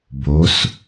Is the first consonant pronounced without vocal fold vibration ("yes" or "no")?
no